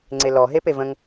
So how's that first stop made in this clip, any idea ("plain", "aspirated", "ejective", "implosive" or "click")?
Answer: click